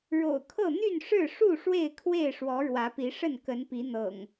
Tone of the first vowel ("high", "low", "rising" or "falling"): low